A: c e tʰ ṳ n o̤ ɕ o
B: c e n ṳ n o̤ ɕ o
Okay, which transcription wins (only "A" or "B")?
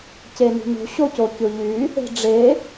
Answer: B